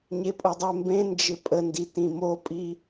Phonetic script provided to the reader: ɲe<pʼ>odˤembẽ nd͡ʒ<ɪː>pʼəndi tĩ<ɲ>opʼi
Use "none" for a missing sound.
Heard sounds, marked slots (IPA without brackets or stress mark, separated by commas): pʼ, ɪ, m